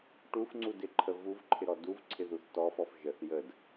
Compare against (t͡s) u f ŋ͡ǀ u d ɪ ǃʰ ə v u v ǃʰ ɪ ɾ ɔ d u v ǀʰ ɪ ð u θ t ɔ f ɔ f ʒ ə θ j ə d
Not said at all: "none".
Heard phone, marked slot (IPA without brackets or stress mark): ʈ